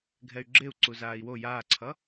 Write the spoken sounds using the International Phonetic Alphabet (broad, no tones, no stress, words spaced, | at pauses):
ɡʱɛy̯ɡ͡ǁeu̯ǀu zaːi̯wo jaːǀʰʌ